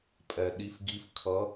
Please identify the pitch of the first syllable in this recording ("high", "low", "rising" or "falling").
low